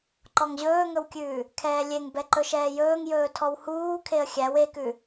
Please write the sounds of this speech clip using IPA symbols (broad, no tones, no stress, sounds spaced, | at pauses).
ǃ ɔ ŋ ʑ ɵː ŋ ɵ w kʲ ʉː | kʰ ɛː lʲ e ŋ b ɛ ǃ ɵ ʃ ɛː j ɵː ŋ j ɵː tʰ ɔ w h uː kʰ e ə̯ xʲ æ w e k ʉ